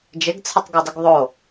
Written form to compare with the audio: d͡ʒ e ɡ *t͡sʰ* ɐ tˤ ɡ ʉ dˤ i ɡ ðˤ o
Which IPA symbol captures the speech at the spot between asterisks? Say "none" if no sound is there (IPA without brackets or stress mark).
t͡sʰ